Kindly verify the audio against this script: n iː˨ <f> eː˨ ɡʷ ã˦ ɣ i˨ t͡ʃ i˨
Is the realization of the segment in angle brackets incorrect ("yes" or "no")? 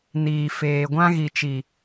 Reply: no